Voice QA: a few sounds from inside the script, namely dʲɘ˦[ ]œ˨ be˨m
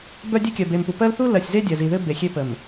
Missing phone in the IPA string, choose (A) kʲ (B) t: A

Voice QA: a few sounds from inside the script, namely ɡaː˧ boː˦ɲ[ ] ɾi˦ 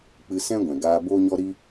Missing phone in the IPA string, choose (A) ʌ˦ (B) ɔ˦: B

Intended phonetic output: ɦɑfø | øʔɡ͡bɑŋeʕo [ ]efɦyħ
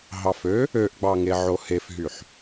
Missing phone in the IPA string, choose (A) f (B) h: B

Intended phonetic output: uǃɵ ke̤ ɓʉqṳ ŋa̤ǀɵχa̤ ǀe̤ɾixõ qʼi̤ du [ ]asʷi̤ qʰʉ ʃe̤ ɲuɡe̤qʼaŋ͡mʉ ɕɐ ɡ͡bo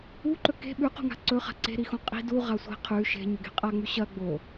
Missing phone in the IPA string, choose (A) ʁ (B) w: A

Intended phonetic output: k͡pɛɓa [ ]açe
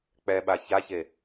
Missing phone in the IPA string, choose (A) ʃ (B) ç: B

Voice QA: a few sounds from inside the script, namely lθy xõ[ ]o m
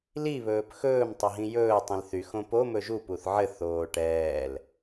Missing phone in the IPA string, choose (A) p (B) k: A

